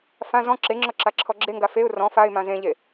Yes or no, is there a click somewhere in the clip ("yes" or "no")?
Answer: yes